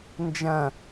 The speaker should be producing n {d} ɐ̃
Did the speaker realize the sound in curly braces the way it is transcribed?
no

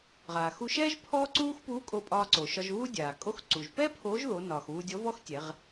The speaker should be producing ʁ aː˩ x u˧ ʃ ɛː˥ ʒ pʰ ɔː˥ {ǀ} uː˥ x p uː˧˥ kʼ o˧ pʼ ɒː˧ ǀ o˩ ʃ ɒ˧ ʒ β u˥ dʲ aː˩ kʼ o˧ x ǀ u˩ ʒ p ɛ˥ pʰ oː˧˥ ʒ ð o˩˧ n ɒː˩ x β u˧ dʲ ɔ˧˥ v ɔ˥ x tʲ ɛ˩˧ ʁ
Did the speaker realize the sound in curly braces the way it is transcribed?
yes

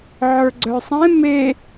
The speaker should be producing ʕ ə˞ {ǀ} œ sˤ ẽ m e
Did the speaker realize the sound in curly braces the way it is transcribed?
no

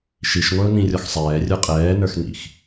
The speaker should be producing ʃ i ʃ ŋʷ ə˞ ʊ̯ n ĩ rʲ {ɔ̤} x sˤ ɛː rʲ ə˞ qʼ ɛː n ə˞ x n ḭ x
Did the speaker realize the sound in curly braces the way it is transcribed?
no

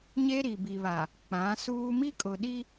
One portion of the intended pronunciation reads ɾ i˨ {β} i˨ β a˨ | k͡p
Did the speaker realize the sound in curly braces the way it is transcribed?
no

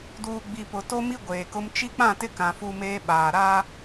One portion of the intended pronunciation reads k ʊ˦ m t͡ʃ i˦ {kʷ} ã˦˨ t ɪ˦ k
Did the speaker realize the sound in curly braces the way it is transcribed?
no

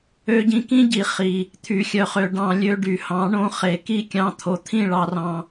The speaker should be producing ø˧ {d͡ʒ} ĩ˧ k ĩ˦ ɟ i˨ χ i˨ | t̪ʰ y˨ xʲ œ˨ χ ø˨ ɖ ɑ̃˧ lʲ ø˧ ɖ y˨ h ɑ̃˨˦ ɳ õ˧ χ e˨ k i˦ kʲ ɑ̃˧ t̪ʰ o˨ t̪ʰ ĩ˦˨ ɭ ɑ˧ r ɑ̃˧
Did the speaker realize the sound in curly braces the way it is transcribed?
no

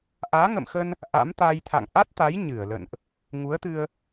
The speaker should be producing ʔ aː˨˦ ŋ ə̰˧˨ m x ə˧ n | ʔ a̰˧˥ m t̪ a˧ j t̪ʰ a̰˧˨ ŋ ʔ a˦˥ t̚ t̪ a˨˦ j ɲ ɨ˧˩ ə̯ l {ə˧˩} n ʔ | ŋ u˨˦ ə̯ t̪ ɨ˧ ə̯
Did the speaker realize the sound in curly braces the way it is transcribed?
no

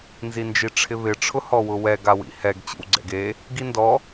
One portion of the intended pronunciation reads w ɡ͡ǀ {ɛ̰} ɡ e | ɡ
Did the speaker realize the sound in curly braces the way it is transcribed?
yes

